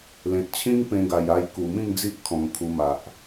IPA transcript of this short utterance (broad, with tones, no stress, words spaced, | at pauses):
lẽ˨t̚t͡ɕʰĩ˦ŋ pẽ˧ɡa˨˩ja˧j ku˨˩mĩ˥˧ŋd͡zi˦ʔ kʰɔ̃˨˩ŋkʰu˧ma˨ʔ